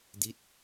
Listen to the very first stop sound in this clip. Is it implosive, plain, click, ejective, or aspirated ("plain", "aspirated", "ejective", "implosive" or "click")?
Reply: plain